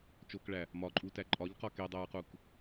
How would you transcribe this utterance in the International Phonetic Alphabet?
t͡ʃokɭæ | mɒǃʼutæ ǃʼɒʎqɒ kedˤæɹquk

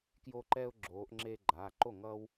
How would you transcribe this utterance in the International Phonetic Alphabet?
kjo˦ǃɛ˦ʊ̯ ɡ͡ǁoː˨˦ʔŋ͡ǁeː˦ɡ͡ǃaː˩˧˩ ǃo˥˩ŋʌː˦w

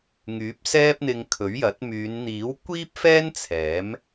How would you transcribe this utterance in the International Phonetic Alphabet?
ŋyː˨˥p̚sɛː˥p̚n̪ɪ˧ŋ kʰɵ˨˥ɥjɐ˨˥t̚ myː˨˧nn̪iː˨˥wkʷiː˥p̚fɛː˥n t͡sʰɛː˨˥m

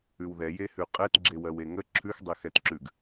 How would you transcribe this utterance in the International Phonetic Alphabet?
ʉwðɛ jehʉqʼɛt ɡ͡ǁewɜweŋə ǁʰʉx dˤexɛtǁʉɡ

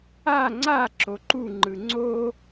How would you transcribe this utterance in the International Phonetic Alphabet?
a ŋ͡ǀa ǁoǃuŋ͡ǃɯ ŋ͡ǀo

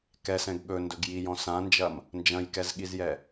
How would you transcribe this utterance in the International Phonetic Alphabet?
kɛsɛ̃ɡ ɠɵndɵɡ jijɔ̃ sãnd͡ʒɐm | nd͡ʒɐ̃jkɛzɠizjɛ

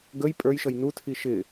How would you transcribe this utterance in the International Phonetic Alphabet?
ɡəj pʼə˞jʃʌj nutʰi ʃɪ

